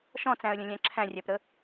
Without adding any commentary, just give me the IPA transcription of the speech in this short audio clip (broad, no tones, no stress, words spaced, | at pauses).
ʃɔ̃t͡sæ̃ə̯lʲə̃lʲæ̃ ǁʰæ̃rʲæpɾə